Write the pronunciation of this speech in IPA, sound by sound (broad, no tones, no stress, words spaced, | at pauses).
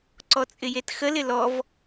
ǀɔt͡sʼɪjetxəl ɪlɔv